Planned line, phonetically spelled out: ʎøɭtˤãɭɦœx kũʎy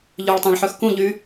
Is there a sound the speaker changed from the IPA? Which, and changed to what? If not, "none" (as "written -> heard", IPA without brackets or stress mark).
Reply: ɦ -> ħ